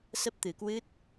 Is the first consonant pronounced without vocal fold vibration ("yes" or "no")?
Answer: yes